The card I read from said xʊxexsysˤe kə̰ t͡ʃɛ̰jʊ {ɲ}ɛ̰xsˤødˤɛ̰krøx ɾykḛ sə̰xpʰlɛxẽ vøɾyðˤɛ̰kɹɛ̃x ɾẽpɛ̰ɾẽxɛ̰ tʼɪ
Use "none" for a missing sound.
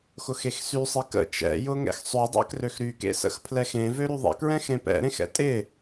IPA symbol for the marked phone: ŋ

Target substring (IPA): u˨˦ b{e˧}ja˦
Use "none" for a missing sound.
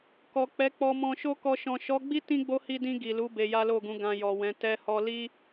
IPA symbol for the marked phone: e˧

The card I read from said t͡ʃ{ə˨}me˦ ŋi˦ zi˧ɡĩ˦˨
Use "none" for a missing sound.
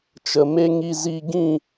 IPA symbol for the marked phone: ə˨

